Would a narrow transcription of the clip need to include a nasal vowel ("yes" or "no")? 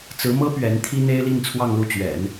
no